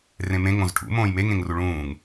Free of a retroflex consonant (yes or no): no